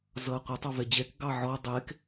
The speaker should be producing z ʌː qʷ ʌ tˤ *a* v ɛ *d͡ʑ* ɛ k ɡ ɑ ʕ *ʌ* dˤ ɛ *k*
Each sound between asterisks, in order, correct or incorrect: incorrect, correct, incorrect, correct

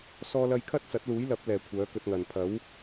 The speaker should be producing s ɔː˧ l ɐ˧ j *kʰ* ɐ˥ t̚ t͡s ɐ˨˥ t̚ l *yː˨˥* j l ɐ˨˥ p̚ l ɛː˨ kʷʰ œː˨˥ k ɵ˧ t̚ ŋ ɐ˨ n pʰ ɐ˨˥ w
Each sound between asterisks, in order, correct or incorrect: correct, incorrect

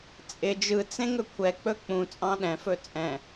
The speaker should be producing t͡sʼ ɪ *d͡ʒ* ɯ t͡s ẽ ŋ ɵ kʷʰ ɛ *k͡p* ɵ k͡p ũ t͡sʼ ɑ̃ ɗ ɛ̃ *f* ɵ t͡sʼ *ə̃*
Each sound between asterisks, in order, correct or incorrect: correct, correct, correct, incorrect

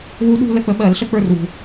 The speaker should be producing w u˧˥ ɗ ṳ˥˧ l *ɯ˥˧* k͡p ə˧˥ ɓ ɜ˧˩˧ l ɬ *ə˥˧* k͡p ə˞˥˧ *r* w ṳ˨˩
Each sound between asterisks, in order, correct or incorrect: incorrect, correct, correct

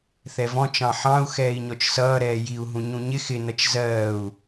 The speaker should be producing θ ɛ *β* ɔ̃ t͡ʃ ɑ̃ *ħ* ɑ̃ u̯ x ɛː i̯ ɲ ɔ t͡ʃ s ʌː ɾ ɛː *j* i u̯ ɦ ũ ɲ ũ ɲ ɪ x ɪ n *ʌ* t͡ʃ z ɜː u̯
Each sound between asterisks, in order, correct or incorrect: incorrect, correct, correct, correct

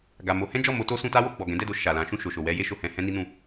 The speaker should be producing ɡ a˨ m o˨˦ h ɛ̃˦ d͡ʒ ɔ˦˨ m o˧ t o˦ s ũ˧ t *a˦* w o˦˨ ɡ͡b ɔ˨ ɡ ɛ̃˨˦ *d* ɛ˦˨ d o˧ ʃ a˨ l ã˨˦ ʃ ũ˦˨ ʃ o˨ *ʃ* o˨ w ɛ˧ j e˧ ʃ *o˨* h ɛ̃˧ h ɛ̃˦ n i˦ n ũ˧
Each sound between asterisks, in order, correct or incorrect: correct, correct, correct, correct

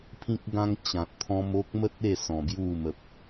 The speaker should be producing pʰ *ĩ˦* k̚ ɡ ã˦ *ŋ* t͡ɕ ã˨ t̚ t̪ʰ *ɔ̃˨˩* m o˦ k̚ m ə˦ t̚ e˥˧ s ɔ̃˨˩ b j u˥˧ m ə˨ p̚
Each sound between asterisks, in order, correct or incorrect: correct, correct, incorrect

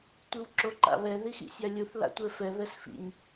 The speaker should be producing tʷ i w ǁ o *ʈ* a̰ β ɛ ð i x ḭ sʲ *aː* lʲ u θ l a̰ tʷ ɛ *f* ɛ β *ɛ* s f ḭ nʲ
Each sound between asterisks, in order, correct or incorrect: incorrect, incorrect, correct, correct

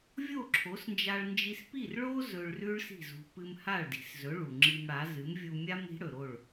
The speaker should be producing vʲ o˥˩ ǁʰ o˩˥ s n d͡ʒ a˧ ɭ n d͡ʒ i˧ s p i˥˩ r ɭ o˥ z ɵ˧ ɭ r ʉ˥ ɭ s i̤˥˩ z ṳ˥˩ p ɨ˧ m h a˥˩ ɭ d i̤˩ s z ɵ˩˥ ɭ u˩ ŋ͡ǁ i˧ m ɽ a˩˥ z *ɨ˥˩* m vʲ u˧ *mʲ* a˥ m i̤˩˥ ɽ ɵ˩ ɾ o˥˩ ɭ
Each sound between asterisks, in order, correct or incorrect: incorrect, correct

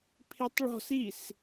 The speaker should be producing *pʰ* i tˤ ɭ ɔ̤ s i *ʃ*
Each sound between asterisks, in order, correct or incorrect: correct, incorrect

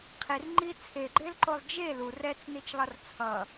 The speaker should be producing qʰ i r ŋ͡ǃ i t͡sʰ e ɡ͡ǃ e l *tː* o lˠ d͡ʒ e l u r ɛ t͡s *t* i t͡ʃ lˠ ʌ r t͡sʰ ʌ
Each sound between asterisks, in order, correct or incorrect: incorrect, incorrect

